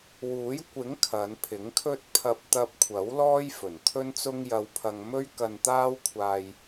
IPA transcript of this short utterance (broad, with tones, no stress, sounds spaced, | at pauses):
w uː˨˥ j kʷ ɪ˨˥ ŋ kʰ ɐ˨˧ n pʰ ɪ˨˥ ŋ kʰ ɵ˥ t̚ pʰ ɐ˧ p̚ t̪ ɐ˧ p̚ kʷʰ ɐ˨˥ w l ɔː˥ j f ɵ˨˩ n t̪ʰ ɵ˥ n t͡s ʊ˥ ŋ j ɐ˧ w pʰ ɐ˧ ŋ m ɵ˥ ɥ k ɐ˧ n t̪ aː˥ w kʷʰ aː˧ j